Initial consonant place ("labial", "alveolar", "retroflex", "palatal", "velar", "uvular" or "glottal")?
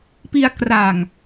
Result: labial